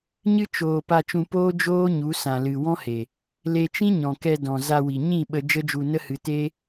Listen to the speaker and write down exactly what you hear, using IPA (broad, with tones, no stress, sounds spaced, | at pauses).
ɲ ɨ˦ t͡ʃ oː˨ p a˧ t͡ʃ ũ˧ p oː˦ d͡ʒ oː˦ ɲ u˨˦ s ã˨ l ɨ˨ w ɔ̃˦ h e˨ | l e˧ t͡ʃ ĩ˦ ɲ ɔ̃˨ k ɛ˧ d ɔ̃˨ z a˧ w i˨ ɲ ĩ˦˨ ɓ ə˧ d͡ʒ ə˦ d͡ʒ u˧ n ə˦ h ɨ˧ t e˦